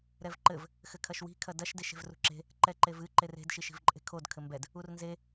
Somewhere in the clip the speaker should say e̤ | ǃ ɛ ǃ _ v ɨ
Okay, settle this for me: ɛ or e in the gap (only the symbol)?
e